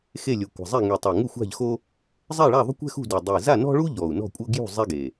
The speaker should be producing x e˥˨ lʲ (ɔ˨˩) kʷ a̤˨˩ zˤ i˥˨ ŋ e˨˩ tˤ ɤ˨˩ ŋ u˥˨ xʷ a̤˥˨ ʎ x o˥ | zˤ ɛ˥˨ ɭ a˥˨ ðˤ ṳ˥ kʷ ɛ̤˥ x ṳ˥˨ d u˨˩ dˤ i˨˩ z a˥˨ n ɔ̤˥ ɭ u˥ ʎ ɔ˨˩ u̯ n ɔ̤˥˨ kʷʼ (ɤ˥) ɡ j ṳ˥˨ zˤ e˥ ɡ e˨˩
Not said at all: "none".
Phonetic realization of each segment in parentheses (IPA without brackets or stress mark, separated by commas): o˨˩, ɤ˥